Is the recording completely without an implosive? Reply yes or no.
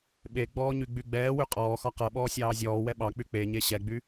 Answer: no